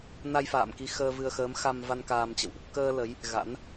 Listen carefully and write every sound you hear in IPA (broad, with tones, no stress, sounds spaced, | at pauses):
n a˧ j f a̰ː˧˨ m k i˧ x əː˧ v ɨ˧ ə̯ x əː˨˦ m x a˧ m v a˧ n k aː˧ m t͡ɕ ə̰˧˨ w ʔ | k əː˧ l ə˨˦ j | ɣ a̰˧˥ n